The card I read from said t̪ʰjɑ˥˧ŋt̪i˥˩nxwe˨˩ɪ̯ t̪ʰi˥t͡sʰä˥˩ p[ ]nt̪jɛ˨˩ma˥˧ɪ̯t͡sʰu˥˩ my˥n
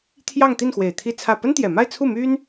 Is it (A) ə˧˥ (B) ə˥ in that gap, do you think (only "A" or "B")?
B